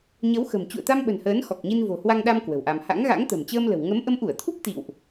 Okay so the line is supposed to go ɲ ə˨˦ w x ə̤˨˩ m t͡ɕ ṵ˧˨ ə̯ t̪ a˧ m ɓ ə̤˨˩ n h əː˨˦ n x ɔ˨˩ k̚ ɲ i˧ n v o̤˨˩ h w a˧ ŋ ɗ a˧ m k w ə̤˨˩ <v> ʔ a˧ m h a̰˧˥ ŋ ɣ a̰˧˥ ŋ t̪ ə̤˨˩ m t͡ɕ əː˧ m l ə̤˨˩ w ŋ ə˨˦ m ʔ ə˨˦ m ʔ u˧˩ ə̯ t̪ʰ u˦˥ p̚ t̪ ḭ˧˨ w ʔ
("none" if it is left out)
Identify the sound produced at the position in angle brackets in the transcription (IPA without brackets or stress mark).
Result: w